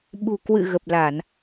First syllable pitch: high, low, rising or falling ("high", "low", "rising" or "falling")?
low